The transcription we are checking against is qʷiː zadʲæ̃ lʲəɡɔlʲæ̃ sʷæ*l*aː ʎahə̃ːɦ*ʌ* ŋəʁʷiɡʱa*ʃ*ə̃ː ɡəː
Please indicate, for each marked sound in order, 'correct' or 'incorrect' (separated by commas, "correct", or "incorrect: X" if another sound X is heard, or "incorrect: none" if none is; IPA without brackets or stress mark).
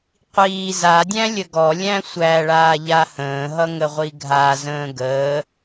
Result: incorrect: ɭ, correct, incorrect: z